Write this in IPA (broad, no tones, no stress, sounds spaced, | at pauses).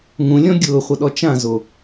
ŋ ũ lʲ ɔ̃ ɡʲ ʊː χʷ ʌ ɗ ɔ t͡ʃ ã z o